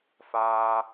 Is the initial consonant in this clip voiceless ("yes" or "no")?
yes